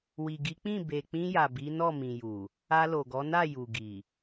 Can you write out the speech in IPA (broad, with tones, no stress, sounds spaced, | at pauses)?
w i˨ ɡ i˨˦ k͡p ĩ˦˨ b e˨ k͡p ĩ˧ j a˨ b i˨˦ n ɔ˦˨ m ĩ˨ j u˨ | a˧ l o˨ ɡ ɔ˨˦ n a˦˨ j u˨ ɡ i˨